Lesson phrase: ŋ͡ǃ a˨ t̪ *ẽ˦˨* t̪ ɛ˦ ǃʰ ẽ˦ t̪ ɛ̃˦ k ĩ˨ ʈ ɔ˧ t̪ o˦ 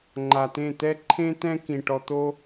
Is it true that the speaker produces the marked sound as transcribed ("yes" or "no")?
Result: yes